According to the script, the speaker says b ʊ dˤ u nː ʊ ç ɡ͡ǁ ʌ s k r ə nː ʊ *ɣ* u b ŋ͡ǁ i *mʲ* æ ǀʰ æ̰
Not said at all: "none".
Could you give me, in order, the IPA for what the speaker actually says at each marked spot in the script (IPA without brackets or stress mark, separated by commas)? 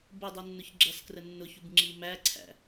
ç, m